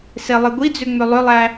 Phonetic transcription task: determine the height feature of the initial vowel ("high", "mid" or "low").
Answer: mid